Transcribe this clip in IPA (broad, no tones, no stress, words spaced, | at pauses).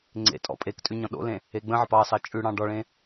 ŋ͡ǀḛ tʼɔ̰pʼektʼʉ ɲɔ̃ɗo̰lẽ | eɡ͡bə̃ʕəp ɑsɑ t͡ʃʼʉɽɑ̃ ɖɔɭẽ